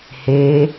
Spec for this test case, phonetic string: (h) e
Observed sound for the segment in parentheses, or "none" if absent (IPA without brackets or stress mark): h